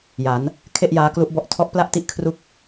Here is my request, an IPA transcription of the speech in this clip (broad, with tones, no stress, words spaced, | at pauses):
ja˩˦n | kʰe˥˩ʔjaː˦˥ klu˦˥ʔbɔ˦˥ʔ tʰɔ˦˥ʔpla˥˩ʔti˥˩ʔkʰru˦˥k̚